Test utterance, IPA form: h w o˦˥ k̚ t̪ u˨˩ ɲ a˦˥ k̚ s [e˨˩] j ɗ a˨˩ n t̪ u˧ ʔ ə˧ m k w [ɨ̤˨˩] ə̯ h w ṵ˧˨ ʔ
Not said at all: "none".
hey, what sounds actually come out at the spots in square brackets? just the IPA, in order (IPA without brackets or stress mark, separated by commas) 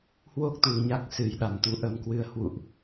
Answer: ɨ˨˩, ɨ˧